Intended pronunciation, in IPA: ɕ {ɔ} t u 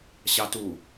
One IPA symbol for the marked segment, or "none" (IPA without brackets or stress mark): ɑ